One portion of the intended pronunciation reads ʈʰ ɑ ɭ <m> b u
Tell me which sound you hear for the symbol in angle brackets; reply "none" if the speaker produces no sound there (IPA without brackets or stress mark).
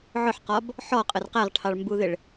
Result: m